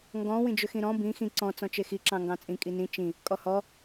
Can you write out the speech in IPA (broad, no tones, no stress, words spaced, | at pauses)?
ŋɡɔ̃ wĩd͡ʒʏxĩɾɔ̃ bĩ xĩ ǀɔ̃ t͡sɔ̃t͡ʃexi ǁɑ̃ŋɡɑ̃t͡sʼĩ kʼinĩ t͡ʃĩ | kʼɔhɔ